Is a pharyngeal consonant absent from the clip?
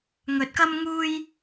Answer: yes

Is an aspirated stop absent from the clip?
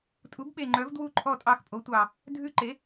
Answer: no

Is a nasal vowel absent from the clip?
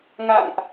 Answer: yes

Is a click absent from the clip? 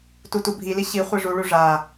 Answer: yes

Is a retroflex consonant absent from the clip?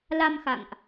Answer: yes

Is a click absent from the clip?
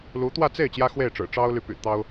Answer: yes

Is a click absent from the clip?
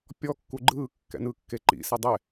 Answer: no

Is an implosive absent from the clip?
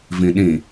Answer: no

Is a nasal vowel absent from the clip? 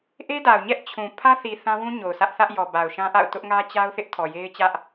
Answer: no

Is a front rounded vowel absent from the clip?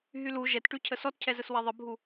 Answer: no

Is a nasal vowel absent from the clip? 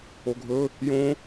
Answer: no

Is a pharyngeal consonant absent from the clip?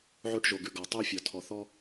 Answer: no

